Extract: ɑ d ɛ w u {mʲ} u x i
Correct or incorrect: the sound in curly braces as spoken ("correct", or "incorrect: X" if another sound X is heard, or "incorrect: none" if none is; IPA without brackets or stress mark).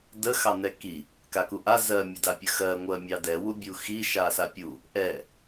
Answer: incorrect: bʲ